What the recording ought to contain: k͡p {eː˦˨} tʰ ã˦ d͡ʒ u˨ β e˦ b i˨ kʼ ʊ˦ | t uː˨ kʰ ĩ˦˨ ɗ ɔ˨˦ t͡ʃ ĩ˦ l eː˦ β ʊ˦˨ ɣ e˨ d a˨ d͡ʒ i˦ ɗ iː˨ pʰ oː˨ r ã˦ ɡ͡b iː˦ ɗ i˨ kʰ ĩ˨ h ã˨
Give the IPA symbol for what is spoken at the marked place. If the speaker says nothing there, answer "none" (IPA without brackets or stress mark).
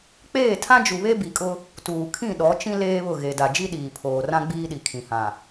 eː˦˨